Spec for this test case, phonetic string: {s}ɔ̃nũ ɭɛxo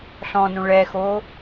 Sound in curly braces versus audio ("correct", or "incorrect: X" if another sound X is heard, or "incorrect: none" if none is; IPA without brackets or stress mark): incorrect: ɬ